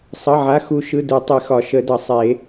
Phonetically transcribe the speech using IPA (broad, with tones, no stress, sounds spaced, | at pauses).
sˤ ʌ˩˧˩ ʕ a˩˧˩ x u˨˩˦ ʃ ɯ˩˧˩ d u˨˩˦ tˤ i˨˩˦ x ɒ˨˩˦ ʃ ə˨˩˦ d ʌ˨˩˦ sˤ e˨˩˦